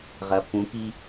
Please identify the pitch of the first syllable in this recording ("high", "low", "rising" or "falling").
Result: rising